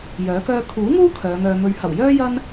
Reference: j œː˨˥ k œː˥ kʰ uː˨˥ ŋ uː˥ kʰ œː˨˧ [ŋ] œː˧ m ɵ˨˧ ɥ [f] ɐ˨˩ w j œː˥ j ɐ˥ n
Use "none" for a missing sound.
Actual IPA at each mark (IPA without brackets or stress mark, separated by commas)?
ŋ, h